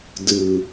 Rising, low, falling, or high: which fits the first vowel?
low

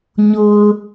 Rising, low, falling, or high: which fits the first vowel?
low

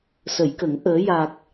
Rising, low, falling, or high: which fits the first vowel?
low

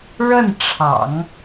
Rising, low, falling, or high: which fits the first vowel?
falling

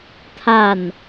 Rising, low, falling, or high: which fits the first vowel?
falling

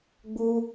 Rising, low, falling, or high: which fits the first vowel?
high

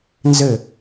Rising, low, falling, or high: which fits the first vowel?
falling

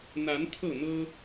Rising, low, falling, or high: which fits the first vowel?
rising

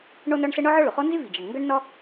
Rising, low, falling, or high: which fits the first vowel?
high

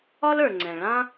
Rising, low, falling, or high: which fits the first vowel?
high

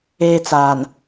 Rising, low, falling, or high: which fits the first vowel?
high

